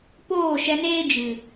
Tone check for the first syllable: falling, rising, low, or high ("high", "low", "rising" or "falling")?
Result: falling